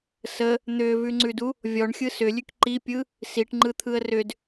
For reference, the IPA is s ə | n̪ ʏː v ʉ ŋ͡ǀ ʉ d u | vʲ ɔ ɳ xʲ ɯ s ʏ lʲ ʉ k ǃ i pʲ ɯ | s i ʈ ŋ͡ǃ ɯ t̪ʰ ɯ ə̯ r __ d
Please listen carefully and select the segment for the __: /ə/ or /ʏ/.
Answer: ʏ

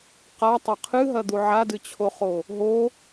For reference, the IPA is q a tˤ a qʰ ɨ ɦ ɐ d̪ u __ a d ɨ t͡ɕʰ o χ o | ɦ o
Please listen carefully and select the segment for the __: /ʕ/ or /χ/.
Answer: ʕ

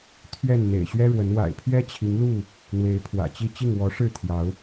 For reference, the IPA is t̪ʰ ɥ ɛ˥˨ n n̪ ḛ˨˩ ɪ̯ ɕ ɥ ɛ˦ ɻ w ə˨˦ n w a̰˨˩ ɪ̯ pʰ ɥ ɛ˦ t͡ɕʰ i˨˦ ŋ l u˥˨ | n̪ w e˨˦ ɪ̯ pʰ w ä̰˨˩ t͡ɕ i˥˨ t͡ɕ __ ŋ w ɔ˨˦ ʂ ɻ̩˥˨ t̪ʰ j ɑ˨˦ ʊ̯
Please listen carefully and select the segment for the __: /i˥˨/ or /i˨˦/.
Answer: i˥˨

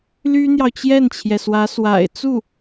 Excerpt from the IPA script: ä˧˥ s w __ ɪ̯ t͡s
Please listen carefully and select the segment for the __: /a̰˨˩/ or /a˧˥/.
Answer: a̰˨˩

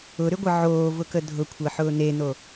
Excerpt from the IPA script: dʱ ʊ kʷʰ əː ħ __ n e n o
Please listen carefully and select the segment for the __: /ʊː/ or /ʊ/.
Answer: ʊː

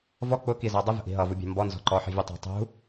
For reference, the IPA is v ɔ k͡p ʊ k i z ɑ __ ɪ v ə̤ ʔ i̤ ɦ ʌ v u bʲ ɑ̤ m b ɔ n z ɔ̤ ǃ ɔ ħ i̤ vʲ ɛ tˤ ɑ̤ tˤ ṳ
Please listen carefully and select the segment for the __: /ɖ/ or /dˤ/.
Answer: dˤ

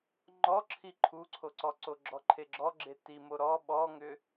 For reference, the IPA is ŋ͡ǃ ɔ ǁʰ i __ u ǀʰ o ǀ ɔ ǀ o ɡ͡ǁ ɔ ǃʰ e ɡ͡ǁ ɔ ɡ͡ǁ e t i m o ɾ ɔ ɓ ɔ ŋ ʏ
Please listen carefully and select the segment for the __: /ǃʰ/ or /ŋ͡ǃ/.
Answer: ǃʰ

